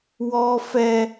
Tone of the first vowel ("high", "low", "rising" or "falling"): high